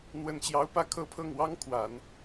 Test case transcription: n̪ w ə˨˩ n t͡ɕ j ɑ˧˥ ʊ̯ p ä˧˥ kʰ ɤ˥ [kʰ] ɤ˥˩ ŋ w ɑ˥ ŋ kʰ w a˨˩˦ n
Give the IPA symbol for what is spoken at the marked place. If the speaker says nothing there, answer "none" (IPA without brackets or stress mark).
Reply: pʰ